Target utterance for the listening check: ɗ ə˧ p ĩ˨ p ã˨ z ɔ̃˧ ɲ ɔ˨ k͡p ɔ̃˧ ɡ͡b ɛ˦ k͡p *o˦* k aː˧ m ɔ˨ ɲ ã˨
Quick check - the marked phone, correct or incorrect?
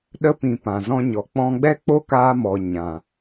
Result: correct